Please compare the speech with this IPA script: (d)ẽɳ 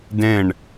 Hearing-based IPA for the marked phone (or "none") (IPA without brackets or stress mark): d